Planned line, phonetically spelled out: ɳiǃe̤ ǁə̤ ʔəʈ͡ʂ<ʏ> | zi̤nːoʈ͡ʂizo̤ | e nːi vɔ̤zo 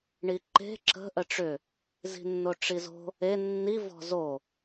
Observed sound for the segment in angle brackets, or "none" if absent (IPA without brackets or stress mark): ʏ